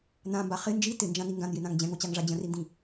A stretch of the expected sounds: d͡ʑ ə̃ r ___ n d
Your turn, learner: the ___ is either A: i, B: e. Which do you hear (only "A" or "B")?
A